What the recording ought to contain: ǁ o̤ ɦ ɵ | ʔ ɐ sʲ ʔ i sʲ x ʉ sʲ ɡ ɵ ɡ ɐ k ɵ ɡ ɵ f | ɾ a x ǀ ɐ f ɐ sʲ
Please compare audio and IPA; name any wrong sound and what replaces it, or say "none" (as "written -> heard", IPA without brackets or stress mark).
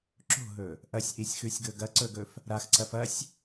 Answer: k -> ǀ